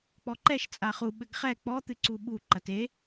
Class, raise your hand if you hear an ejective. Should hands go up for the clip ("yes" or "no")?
yes